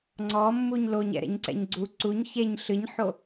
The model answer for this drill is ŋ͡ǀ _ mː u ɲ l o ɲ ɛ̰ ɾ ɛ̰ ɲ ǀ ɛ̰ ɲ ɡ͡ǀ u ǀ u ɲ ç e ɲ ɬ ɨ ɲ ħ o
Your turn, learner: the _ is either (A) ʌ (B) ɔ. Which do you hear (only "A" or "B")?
B